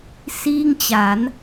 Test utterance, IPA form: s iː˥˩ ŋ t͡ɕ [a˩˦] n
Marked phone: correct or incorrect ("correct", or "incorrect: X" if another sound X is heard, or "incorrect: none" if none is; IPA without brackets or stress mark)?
correct